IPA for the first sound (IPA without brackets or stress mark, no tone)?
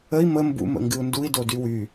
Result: ə